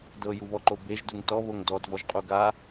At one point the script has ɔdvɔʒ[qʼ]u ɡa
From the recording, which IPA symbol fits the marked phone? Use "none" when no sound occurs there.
qʼ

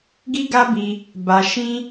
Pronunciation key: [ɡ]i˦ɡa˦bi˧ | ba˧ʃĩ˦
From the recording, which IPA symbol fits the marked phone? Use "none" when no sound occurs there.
ɡ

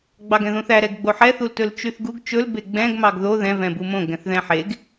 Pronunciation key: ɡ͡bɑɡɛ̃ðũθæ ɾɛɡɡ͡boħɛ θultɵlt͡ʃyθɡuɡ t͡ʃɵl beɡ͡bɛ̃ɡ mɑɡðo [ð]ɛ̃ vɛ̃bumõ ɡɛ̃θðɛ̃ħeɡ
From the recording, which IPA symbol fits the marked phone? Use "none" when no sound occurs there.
ð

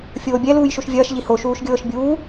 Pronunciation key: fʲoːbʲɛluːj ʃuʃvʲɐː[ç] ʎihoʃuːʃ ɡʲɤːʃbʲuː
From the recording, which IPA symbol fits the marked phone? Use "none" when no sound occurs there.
ʃ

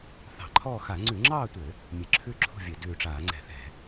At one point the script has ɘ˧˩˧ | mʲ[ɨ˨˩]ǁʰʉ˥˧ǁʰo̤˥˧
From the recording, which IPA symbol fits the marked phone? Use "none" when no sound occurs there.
ɨ˨˩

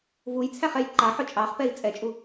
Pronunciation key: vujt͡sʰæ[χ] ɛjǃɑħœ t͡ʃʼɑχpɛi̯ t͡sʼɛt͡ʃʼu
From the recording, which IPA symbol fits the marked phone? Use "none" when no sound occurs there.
χ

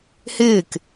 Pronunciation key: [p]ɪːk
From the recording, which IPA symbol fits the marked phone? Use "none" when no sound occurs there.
h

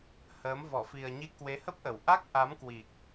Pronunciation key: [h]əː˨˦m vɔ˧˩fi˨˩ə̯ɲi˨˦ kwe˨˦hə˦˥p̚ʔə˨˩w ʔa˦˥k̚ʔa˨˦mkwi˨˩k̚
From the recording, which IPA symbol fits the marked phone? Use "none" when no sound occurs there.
h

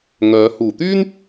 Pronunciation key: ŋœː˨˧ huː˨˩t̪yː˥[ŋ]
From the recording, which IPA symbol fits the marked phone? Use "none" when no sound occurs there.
n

